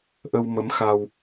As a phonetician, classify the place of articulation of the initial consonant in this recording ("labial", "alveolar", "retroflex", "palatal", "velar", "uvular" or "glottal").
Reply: glottal